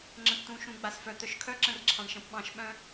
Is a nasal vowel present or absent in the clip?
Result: present